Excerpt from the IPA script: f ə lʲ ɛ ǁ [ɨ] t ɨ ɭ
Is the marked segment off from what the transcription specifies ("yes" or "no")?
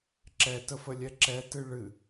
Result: yes